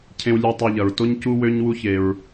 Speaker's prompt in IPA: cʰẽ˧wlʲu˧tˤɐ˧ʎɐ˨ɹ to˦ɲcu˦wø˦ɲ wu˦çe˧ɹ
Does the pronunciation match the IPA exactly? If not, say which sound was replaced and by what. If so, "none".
none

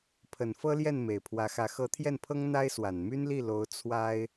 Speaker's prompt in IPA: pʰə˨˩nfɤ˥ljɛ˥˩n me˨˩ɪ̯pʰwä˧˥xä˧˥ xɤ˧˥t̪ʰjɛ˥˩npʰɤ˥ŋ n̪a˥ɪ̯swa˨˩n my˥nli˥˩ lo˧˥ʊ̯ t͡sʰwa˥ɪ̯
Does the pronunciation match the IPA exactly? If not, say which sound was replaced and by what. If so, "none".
none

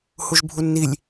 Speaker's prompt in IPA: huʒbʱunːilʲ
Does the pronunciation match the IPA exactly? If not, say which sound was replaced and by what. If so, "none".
none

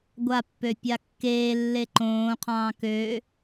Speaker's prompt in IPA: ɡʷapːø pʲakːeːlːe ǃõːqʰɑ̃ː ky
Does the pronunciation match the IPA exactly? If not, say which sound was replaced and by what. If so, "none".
y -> ø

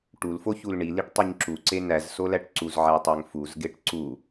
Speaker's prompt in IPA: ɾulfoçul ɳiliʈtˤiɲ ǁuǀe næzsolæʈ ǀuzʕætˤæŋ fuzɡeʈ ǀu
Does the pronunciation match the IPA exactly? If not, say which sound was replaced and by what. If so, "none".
ɾ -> ʈ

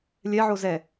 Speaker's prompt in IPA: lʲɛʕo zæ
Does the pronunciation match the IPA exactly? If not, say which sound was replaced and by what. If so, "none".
æ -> ɛ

